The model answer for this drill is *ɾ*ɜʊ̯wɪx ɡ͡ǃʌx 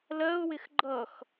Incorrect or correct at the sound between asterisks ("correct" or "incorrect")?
incorrect